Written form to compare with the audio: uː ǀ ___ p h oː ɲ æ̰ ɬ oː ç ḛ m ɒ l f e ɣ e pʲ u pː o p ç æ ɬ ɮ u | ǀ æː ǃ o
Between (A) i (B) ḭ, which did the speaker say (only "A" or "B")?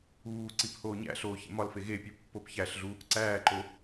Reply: A